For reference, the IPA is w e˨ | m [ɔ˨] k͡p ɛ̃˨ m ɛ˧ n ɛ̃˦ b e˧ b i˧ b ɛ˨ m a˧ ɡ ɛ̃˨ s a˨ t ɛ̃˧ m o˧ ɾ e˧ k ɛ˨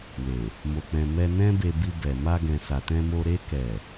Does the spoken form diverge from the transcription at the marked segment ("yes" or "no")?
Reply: yes